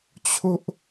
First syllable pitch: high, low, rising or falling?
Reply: high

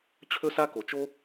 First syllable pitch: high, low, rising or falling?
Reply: high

